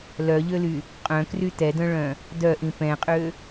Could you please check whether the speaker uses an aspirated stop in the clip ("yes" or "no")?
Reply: no